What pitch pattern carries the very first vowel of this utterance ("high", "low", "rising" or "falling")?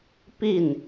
falling